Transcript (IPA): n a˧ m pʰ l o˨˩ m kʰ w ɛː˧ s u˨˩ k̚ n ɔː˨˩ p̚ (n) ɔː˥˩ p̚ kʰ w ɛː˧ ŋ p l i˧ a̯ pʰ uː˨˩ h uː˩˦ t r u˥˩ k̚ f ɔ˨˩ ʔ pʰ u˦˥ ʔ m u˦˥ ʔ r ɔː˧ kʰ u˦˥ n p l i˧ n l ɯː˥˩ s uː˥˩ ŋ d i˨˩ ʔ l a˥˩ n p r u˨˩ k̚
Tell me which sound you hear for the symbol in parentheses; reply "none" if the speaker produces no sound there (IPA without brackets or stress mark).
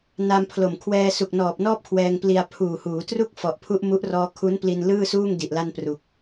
n